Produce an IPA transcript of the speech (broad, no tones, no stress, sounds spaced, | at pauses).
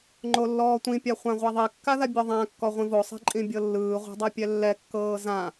ŋ͡ǃ o lː ɔː tʷ ĩ pʲ a χʷ ã ʁʷ a ðˤ i kː a ð a bʲ ɔ ðˤ ã kː ɔ ʁʷ ĩ v o sˤ ɛ̤ ǃʼ ĩ bʲ ɤ lː ɯː ʁʷ a̤ dˤ ɛ pʲ ɛ lː ɛ kː ɤː z ã